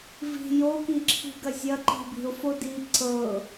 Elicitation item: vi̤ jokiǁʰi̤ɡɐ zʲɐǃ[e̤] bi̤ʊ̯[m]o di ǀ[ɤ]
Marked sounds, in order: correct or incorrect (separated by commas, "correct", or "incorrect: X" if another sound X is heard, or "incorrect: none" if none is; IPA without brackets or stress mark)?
incorrect: i̤, incorrect: f, correct